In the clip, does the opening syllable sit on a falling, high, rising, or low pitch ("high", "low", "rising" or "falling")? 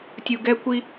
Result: low